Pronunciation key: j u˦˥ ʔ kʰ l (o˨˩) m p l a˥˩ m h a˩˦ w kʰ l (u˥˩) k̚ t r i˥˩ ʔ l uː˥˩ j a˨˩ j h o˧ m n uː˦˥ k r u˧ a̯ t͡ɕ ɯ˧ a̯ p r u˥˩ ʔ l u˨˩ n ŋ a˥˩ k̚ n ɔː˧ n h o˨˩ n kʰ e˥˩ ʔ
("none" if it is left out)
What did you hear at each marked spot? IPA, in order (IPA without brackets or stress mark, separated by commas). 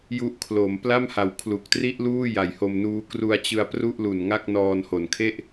o˩˦, u˨˩